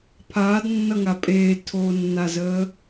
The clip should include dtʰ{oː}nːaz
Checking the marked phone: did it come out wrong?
no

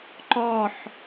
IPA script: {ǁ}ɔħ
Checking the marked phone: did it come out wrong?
yes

